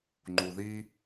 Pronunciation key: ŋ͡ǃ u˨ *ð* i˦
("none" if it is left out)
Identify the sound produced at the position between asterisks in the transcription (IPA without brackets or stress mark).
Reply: ð